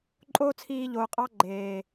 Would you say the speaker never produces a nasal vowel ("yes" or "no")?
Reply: yes